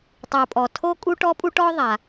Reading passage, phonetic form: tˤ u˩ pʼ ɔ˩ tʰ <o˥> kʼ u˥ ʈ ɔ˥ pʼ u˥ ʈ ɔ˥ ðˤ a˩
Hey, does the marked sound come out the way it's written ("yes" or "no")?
yes